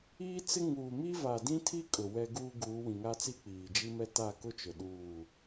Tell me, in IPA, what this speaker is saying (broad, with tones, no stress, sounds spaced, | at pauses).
iː˦ t͡s ɪ˦ ŋ uː˨ m i˦ v a˨ d ĩ˦ tʰ i˦ kʼ ʊ˨ w ɛ˦ ɡ uː˦ ɡ uː˨˦ w ĩ˨ ŋ a˦ t͡s i˦ k͡p iː˨ d͡ʒ i˦ m ɛ˦ t a˦˨ k ʊ˦ t͡ʃ ʊ˨ ɗ uː˦˨